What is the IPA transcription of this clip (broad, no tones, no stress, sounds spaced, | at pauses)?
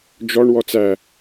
d͡ʒ ɔ ɳ w ɔ t͡s æ